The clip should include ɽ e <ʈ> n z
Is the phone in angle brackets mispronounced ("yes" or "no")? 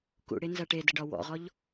yes